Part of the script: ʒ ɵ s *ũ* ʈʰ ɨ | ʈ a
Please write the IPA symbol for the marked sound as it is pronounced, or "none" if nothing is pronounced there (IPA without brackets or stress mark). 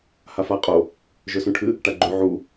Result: ũ